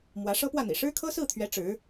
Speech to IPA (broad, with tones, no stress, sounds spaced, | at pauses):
m w ä˧˥ ʂ ɤ˥ p w ä˥˩ n̪ ḭ˨˩ ʂ ɻ̩˥ kʰ ɤ˥ s ɹ̩˥˩ t̪ʰ ɥ ɛ˧˥ ʈ͡ʂ ɻ̩˧˥